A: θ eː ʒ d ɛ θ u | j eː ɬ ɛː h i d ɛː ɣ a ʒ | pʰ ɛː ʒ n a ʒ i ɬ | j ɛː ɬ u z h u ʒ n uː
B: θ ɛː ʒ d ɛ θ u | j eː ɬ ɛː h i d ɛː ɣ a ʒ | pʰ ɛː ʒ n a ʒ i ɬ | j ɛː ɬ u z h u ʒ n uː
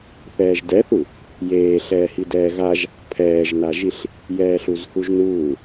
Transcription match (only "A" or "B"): B